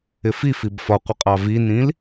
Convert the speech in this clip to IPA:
ɪ f i f i b f ɒ qʷ ɪ qʼ ɑ v i n ĩ l

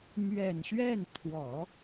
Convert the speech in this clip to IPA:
m ɥ ɛ˨˩ n ɕ ɥ ɛ˥˩ n t̪ʰ w ɔ˨˩˦

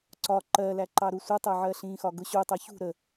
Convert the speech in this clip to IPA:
ǀ ɒ ǃ ɜ l æ ǃ ɑ ɾ u sʷ ə tˤ ɜ ʕ ɜ ɬ ĩ x ɒ ɡ ʊ ɕ u tˤ ʌ ç ṳ ɾ ə

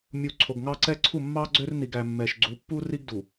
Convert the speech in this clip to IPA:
mʲ u˨ ǀʰ o˨ ɡ ŋ ɑ˦ ǀ ɛ˦ ǀʰ u˦˨ mː ɑ˦ ɡ͡ǀ ø˦ r n i˨ ɡ æ˨ mː ɛ˨ ʃ ɡ͡ǀ u˨˦ pː u˦ r i˦ ɡ d u˨

